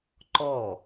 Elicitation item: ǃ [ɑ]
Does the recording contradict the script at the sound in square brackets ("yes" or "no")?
yes